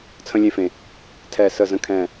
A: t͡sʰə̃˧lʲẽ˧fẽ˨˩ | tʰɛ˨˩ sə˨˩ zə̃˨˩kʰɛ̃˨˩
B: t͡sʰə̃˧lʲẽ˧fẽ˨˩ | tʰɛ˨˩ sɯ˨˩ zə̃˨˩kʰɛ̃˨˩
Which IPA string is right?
A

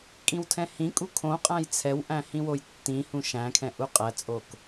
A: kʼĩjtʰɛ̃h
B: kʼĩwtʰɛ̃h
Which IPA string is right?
B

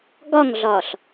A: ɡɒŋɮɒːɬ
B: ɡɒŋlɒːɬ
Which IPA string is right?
A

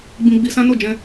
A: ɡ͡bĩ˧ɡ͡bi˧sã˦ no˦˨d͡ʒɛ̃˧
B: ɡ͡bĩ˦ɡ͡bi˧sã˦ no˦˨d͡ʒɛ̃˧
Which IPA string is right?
A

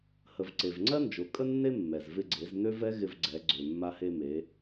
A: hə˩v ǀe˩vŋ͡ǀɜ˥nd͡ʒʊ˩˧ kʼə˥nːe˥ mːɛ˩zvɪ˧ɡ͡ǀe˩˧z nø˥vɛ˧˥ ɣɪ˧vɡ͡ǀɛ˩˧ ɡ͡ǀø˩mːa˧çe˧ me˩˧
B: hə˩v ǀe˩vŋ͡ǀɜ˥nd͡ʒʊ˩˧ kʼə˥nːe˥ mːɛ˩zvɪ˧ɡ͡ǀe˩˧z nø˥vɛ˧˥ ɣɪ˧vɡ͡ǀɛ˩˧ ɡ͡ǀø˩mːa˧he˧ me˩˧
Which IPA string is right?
B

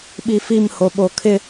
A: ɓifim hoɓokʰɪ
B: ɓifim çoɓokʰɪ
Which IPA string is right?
A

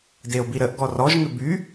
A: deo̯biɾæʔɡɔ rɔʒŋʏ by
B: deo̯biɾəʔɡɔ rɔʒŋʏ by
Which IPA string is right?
B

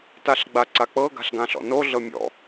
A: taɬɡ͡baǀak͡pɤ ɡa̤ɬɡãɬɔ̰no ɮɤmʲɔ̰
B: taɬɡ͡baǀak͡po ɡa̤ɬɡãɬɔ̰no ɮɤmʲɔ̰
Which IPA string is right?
A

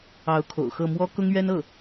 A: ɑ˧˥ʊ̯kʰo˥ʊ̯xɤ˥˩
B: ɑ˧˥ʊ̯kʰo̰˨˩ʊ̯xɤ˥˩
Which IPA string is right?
B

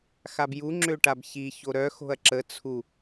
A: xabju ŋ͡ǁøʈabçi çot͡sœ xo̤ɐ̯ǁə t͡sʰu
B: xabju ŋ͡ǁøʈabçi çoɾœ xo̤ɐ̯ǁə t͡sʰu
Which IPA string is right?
B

